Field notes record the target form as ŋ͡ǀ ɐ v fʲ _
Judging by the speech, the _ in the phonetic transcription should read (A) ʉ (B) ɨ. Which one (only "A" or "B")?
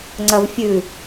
A